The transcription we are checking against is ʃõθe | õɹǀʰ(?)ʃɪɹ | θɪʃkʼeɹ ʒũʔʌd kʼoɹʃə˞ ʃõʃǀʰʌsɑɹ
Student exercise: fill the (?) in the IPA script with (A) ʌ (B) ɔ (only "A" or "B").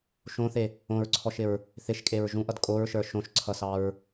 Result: B